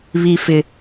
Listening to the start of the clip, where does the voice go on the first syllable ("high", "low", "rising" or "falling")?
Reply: high